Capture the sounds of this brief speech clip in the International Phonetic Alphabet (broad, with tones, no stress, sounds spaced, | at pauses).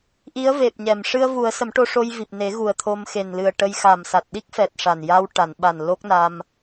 ʔ i˧˥ ə̯ v e˨˩ p̚ ɲ ɛ˨˩˨ m ʂ ɨ˧ ə̯ v u˨˩˦ ə̯ s ə˨˩˦ m ʈ o˧ ʂ o˧ j v i˨˩ p̚ n e˨˩˦ ɣ u˨˩ ə̯ t̪ʰ o˧ m x e˨˩ n l ɨ˨˩ ə̯ ʈ ə˧ j x a˨˩ m s a˨˩ t̚ ɗ i˦˥ k̚ f ɛ˨˩ t̚ ʂ a˨˩ n j a˧ w ʈ a˨˩˨ n ɓ a˨˩ n l o˦˥ k̚ n a˧ m